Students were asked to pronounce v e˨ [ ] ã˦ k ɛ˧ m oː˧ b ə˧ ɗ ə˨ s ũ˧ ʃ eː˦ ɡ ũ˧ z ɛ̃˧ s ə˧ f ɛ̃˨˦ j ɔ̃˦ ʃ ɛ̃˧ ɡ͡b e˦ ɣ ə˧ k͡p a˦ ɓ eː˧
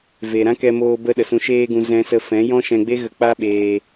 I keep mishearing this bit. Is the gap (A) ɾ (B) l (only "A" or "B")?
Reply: A